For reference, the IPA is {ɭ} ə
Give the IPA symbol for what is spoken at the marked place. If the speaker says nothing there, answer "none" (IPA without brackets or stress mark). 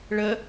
ɭ